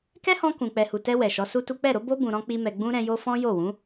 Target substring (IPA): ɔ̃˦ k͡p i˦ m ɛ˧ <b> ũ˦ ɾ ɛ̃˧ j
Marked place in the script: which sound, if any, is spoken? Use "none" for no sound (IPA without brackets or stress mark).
ɡ͡b